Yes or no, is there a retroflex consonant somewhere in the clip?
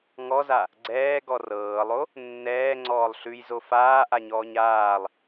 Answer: no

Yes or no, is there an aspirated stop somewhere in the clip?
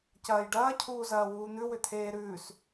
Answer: yes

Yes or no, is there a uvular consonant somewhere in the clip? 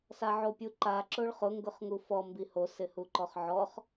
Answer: yes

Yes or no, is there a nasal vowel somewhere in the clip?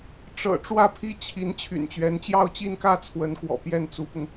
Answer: no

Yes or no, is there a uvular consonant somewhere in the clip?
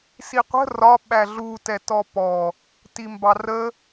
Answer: yes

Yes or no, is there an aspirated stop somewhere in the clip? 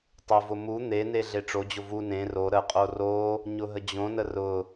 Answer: no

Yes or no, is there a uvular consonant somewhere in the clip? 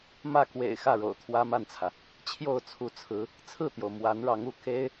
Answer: no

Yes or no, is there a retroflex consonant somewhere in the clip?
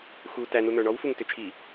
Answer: yes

